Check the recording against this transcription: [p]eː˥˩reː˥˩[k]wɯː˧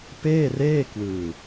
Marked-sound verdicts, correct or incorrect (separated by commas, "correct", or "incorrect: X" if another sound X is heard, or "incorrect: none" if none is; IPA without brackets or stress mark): correct, correct